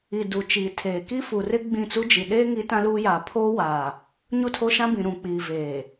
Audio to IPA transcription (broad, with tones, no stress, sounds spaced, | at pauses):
i˨ d u˨ t͡ʃ iː˨ tʰ eː˨ k i˦ f u˨ r ɪ˦ ɡ͡b ĩ˦˨ t͡s u˦ d͡ʒ i˨ ɗ eː˦ ŋ i˦ t ã˦ l uː˦ j a˨ pʰ oː˦ w aː˨ | ɲ u˦˨ tʰ o˦ ʃ ã˦ b ĩ˨ ɾ ũ˨ k͡p iː˨ v eː˨